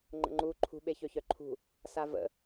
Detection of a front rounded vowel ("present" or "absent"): present